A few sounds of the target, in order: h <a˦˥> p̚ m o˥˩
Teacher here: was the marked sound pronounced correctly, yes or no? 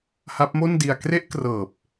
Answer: yes